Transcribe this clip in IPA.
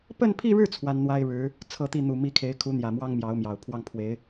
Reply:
pə˥˧npʰi˥˧ɻɻ̩˥˩ t͡sʰwa˥nn̪wa˥ɪ̯ɻɻ̩˧˥ | t͡sʰɤ˥˧t̪i˥˩ n̪u˨˩mi˧˥ kʰe˧˥ɪ̯kʰu˧˥n̪jä˨˩ mwɑ˥ŋmjɑ˧˥ʊ̯mjɑ˨˩ʊ̯ pʰwɑ˥˩ŋpʰwe˧˥ɪ̯

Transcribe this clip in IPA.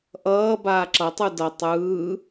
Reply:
ʔʌː baːǁʌtˤu dʌ tˤɯː

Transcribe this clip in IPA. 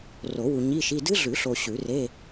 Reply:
ro˨˩˦wu˨ ɲi˧˥˧ʃi˧˥˧ dɨ˦˥ɮʉ˨˩˦ɬo˨ ɕʉ˨˩˦re˧˥˧

